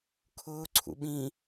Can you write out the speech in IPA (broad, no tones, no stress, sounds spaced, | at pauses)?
kʰ ʊː ǀʰ ṵ ɓ ĩ